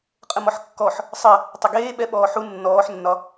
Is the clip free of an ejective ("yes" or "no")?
no